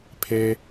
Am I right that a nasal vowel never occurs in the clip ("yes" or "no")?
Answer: yes